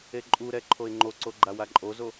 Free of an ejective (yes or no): no